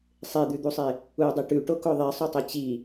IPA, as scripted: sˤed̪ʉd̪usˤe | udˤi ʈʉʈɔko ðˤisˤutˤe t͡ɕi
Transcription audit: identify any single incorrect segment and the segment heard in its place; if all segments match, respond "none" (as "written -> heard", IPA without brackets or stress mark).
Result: ɔ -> o